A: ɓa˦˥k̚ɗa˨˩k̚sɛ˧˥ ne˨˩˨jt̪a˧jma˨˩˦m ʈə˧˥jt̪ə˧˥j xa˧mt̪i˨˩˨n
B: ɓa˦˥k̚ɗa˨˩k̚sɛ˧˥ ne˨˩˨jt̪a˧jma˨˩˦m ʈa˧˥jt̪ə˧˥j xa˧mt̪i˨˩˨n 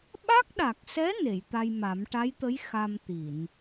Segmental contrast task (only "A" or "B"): B